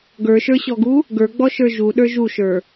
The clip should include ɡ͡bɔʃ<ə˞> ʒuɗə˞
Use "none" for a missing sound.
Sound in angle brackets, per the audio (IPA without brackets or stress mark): ə˞